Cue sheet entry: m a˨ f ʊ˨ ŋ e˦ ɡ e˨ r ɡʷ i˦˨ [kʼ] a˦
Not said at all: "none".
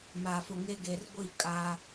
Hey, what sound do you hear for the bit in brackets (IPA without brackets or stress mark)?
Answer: kʼ